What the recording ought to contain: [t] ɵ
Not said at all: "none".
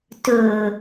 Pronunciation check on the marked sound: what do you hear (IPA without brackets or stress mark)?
t